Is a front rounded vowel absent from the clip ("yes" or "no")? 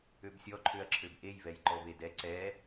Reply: no